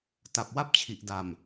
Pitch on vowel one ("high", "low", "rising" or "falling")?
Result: low